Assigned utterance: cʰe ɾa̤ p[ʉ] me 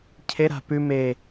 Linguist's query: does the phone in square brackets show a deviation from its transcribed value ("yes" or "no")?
no